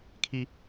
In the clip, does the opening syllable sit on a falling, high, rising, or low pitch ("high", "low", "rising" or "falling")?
high